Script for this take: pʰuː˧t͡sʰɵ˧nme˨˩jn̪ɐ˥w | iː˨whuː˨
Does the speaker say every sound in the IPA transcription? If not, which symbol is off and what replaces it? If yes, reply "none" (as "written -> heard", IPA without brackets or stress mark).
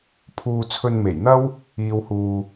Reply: none